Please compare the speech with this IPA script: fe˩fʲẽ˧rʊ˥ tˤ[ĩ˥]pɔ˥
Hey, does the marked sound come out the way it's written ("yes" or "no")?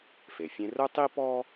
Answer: no